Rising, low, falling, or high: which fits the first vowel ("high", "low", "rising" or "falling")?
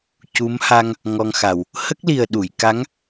rising